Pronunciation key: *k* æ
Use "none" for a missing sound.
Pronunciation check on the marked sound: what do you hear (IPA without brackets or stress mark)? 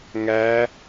ŋ